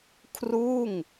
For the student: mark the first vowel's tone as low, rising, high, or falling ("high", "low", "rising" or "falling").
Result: falling